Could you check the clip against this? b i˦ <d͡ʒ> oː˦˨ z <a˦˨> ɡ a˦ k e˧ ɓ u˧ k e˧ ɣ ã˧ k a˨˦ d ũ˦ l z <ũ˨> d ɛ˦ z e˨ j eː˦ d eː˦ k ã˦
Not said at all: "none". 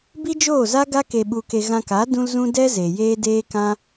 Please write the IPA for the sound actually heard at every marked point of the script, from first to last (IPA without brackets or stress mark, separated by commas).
d͡ʒ, a˦, ũ˦